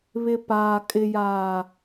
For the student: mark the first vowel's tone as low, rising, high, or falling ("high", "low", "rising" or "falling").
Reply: low